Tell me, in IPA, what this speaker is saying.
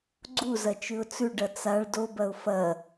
ɡ͡ǀuzɐ t͡ʃʉʊ̯t͡sʉɖɐ t͡saɭ dobɐʊ̯ fɐ

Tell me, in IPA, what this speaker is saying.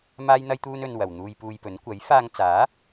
maː˥jn̪ɐ˥jt̪uː˥n ɵ˧nwɐ˨w n̪uː˧jpuː˧jpɵ˨˥n kʷɐ˨˥jfaː˧ŋt͡saː˨˥

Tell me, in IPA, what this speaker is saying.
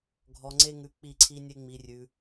ɡʱɔ˧ŋ͡ǀe˦ŋʉ˧ k͡pi˦˨ǀʰi˦nʲe˦ ŋ͡mi˧rʲʉ˧

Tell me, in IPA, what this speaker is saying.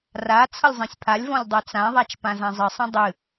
ra t͡sʰʌlʲzˤẽsʲpʰalʲvɔ̃lʲ dˤɤt͡sãðˤat͡ʃ pãzãzˤɨsˤə̃ dˤɨ

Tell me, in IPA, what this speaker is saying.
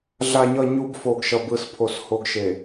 ɮa˨ɲʌ˨ ɲu˨b fo˨ɡʃʌ˨bɯ˨spʰo˨s ho˨ɡʃe˨

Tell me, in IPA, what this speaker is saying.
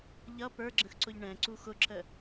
ʎʌ pə˞ɡ͡ǁə̃xǀʊʎ ɳɛ̃ǀu xʊǁə

